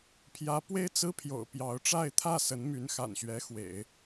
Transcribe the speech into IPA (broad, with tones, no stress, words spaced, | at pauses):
pʰjä˧˥pwe˥ɪ̯ t͡sɹ̩˥pʰjo̰˨˩ʊ̯pjɑ˧˥ʊ̯ ʈ͡ʂa˥˧ɪ̯t̪ʰä˥˩ sə˧˥nmy˧˥n xa̰˨˩nɕɥɛ˧˥ xwḛ˨˩˦ɪ̯